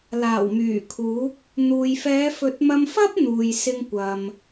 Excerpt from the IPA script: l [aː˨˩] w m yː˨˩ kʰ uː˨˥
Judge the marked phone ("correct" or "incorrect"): correct